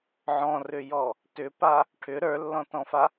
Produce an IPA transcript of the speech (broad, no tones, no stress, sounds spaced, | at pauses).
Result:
ʕ ɔ̃ r ʏ j ɔ | t ʏ p a | ʈʰ ʏ ɾ ə˞ lː ɔ̃ t ɔ̃ f a